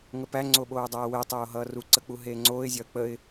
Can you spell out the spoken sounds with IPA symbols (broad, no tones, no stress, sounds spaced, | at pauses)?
ŋ ə p æ ŋ͡ǀ o ɓ oː dˤ æː w e tˤ oː ɦ ʌː r u ǀ ə k͡p u ɦ eː ŋ͡ǀ oː ɪ̯ zʲ ɒ ə̯ k͡p ə ɪ̯